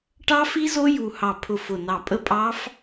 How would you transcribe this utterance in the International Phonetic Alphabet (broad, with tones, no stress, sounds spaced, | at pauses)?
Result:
ʈ ɑ˦˥ f i˦˥ z o˦˥ j u˧˩ h ɑ˧˩ pʰ ʊ˧˩ f ʊ˧˩ n ɑ˧˩ pʼ ə˦˥ pʼ ɑ˦˥ f